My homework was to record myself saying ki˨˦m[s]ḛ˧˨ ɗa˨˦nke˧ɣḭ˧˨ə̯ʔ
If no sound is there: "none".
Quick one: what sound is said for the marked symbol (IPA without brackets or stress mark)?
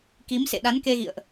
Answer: s